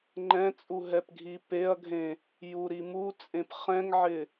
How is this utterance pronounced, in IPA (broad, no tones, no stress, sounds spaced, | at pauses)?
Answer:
ŋ͡ǃ ɛ̃ t͡sʼ u ɦ ɛ p ɡʱ i p e ɐ̯ ɡʱ ẽ | j u ɾ i m u t͡sʼ ẽ p χ ɛ̃ ŋ ʕ ɪ